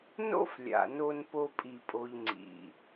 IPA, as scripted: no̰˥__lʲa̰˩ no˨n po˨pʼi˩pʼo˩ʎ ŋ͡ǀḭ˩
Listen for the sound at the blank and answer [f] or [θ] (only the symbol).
f